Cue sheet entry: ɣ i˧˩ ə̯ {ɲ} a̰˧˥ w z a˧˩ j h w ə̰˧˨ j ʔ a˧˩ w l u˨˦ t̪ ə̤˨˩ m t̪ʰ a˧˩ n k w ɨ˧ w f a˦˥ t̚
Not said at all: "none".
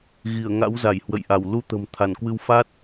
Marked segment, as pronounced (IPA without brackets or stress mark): ŋ